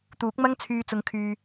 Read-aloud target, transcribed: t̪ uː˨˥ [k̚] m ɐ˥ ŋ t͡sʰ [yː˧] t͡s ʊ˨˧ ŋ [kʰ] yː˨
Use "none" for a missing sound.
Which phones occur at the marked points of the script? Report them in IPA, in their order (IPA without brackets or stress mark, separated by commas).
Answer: k̚, yː˧, kʰ